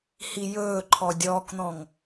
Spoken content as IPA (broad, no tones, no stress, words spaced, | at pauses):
hijɵːǃʰɔ dʲɔːkn̪ɔ̃ŋ